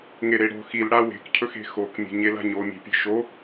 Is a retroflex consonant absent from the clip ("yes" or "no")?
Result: no